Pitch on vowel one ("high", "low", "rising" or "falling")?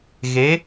rising